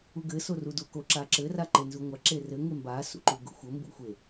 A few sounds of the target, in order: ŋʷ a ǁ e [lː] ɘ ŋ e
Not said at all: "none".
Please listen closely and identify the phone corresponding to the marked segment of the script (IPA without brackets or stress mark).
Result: r